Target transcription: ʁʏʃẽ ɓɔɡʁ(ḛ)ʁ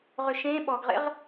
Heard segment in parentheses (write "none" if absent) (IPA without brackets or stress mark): ḛ